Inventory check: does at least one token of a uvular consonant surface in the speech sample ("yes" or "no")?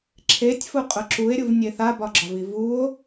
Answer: yes